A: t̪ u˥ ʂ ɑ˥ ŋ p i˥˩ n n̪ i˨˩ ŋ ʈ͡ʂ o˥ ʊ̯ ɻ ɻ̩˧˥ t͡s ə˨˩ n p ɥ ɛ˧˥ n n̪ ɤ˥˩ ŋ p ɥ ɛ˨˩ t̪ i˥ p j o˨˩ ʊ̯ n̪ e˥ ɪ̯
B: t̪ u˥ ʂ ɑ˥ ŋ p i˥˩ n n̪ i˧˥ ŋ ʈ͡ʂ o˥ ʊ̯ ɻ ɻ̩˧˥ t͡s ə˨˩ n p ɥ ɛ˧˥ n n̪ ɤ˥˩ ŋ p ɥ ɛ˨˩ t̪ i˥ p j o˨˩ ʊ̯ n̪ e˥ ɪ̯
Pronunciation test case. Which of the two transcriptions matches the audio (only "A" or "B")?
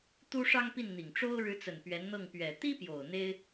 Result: A